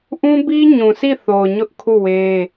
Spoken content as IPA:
ʔ ũ˦ b i˦ ɲ ũ˨ s i˦˨ θ o˨ ʊ̯ ɲ ʊ˦ ʔ kʰ u˦˨ w e˦

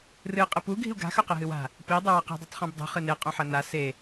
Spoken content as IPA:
r ɨ qʼ ɨ p u ɡʱ i̤ u̯ ɡ a̤ x ɵ q e ɦ ɨ w a̤ | p i dˤ u w a q i̤ dˤ o tˤ χ õ b dˤ ṳ χ ɨ n e qʼ õ ħ ɐ n a s e

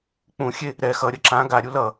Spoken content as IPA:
k͡p ũ xʲ e | ɾ ɛ x ʌ ɾʲ ʌ ǁ ã ɡ a ɾʲ u l ʌ

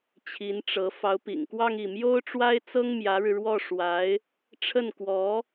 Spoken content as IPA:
t͡ɕʰ i˧˥ n ʈ͡ʂ ɤ˧˥ f ɑ˧˥ ʊ̯ p ḭ˨˩ ŋ k w ɑ˥˧ ŋ i˥˩ m j o˥ ʊ̯ ʈ͡ʂ w a˥ ɪ̯ t͡s ɤ˥ ŋ m j ä˧˥ ɻ ɻ̩˧ ɻ w ɔ˥˩ ʂ w a˧˥ ɪ̯ | ʈ͡ʂʰ ə˥˩ n k w ɔ˧˥

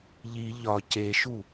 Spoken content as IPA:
ʎ i ʎ ɒ c e ʃ u

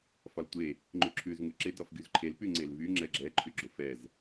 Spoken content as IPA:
f ɒ l tʷ e | ŋ͡ǃ ʉ ǁʰ ʉ z ŋ ʉ ǁ e d ɒ f ɡ y z ǃʰ e l p y ŋ͡ǀ e l v y ŋ͡ǁ ɛ ɡ͡ǁ ɛ ǃʰ y ɡ͡ǁ ʊ f ɛ z

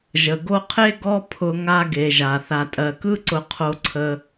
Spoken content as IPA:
ʒ ə˨ ɡ o˧ qʰ e˦ ɡ ɔ˦ pʰ ʊ˧ ŋ a˦ ɡ e˨ ʒ a˨ θ a˨ tʼ ɜ˨ k ɯ˦ ǀ ʊ˧ qʰ o˧ ǀʰ ə˧

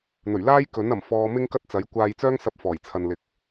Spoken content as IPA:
n̪ ɵ˨˩ ɥ l aː˥ j k ɵ˨˥ n ɐ˨˩ m f ɔː˧ m ɪ˥ ŋ k ɐ˥ t̚ t͡s ɐ˨˥ j kʷ aː˧ j t͡s œː˥ ŋ s ɐ˧ p̚ f ɔː˨˩ j t͡sʰ ɐ˨ n l ɪ˨˥ k̚

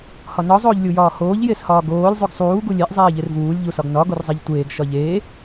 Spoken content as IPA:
h ɒ n ɒ zˤ oː ʎ lʲ u j ɒː h oː ʎ j e s h ɒː ɡ oː lʲ zˤ u ɡ sˤ uː ɡ u lʲ e ʔ zˤ eː ʎ e r v uː lʲ ʎ u s ɒ ɡ n ɒ ɡ o r zˤ e ʎ tʷ eː ɡ ʃ ɒ ʎ eː

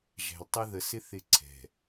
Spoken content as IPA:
ʒ æ̤˨ l tˤ ɪ˦ ð ə˨ s ɪ˦ θ ɪ˦ ǀʰ ɛ̤˨

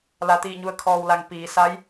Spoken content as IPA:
l a˩ t̪ iː˧˩ ɲ u˩ ə̯ kʰ ɔː˩ w l a˩ ŋ p iː˩˧ s a˧˥ j

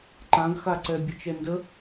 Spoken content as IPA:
ǃ ã ɡ x a ǀ ɛ bʲ ə t͡ʃ ɛ n d ə

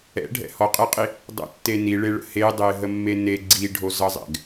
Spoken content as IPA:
ɛ̰ ɖʱ ɛ̰ h ɔ qʼ e qʼ i | dˤ ə̰ tː e n i ɭ e ɭ ə̰ h e dˤ e ɦ ə mː e n e ɡ͡ǀ i ɖʱ o z ʌ zˤ ɛ̰ ɡ

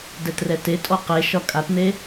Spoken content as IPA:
d ɛ t r ɛ t e tʼ ɔ q e ʃ ɒ kʼ a t n̪ e

